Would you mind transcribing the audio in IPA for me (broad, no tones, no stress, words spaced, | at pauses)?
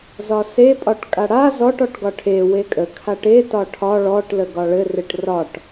zɒse pʼɒʈkʼaɽa zɔʈ ɔʈɡɒʈʰe wekʼə kʰaʈe tɒʈʰɒ ɭɔʈ ləɡɒɭɘ reʈrɒʈ